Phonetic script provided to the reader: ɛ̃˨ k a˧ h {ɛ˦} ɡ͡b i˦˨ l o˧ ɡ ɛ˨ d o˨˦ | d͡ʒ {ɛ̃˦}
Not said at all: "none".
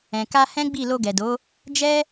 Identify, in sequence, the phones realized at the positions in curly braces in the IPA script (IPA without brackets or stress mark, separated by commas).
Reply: ɛ̃˦, ɛ˦